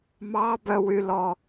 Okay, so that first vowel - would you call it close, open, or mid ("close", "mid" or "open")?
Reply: open